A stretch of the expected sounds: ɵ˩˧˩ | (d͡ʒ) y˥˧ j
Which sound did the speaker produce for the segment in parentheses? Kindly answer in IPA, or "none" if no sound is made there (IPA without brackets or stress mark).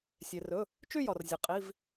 t͡ʃ